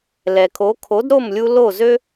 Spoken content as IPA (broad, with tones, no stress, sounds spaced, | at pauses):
l ɛ˩ kʰ o˩˥ kʰ o˩˥ d ɾ o˥˩ m lʲ u˧ l o˥˩ z ø˥